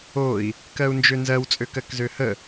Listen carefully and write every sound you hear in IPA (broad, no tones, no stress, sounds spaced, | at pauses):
o i̯ | k ɜ u̯ n d͡ʒ ø n z ɜ w t͡sʼ ø k ɜ k z ø h ə